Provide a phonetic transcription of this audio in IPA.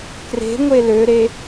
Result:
k r e̤ ŋʷ e l ø ɾ e

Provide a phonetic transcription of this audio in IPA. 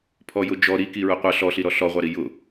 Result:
pʰ ɔ j ʊ d͡ʒ ɔ ɾ i k i ɹ ʊ qʷ ʌ ɬ ɔ ɬ i ɾ ɔ ɬ ɔ ʁʷ ɑ ɾ i j ʊ

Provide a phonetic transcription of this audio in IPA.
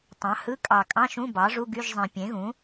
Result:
tˤ ɑ̃˩˥ h ɯ˧˥˧ kʼ ɑ˨˩ kʼ ɑ̃˧˥˧ ʃ ũ˧˥˧ b ɑ˩˥ ʐ u˧˥˧ ɡ y˧˥˧ ʒ zˤ ẽ˨˩ pʲ ẽ˩˥ ɣ ũ˩˥

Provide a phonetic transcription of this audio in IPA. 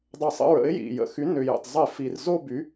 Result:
dˤ ə˧˩˧ sˤ ə̰˩˥ ɹ ə̰˩˥ ɪ̯ j ḭ˩ j ə̰˩ x y˩˥ n ʏ˩ j ə̰˩ tˤ zˤ ɪ˧˩˧ f i˩ r z o˥˧ b y˩˥

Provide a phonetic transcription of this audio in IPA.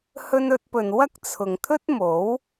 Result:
h ɵ˥ n ɵ˥ t̚ p ɵ˧ n w ɐ˥ k̚ t͡sʰ ʊ˨ ŋ t̪ʰ ɵ˥ t̚ m o˨˥ w

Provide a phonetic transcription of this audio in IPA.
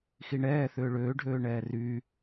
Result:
x i ɳ ɛː θ ʏː ɭ øː ɖʱ øː ɳ ɛː r yː

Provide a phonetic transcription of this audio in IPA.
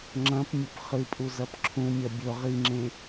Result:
ŋ͡ǁ ɐ̃ p mʲ ɵ p χ ɨ pʼ u z ɐ p ǁʰ ũ mʲ ɐ bʲ ɵ ʁ i ŋ͡ǁ ẽ

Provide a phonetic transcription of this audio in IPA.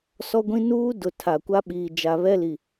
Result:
s ɔ˦ ɡʷ ĩ˦ n uː˦ d ʊ˨ tʰ a˨ kʷ a˦ ɓ iː˨ d͡ʒ a˨ β ɛ˦ l i˨

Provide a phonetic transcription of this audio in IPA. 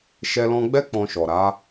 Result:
ʃ ɛ˧ l ɔ̃˧ ɡ͡b ɛ˦ k͡p ɔ̃˧ ʃ ɔ˨ ɾ a˨˦

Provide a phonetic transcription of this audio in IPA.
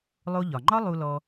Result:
lˠ o˧ ʎ ɒ˩ ŋ͡ǃ ɒ˥ lˠ u˧ l ɔ˧

